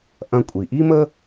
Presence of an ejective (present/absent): present